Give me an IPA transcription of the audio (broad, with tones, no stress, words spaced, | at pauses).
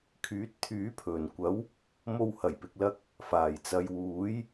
kʰyː˨˥t̚t̪ʰyː˨˥pʰɵ˨˩nkʷɐ˨˥w | mo˧whɐ˨˩jpɪ˨k̚lɐ˧k̚ | faː˨˩jt͡sɐ˨jwuː˨˥j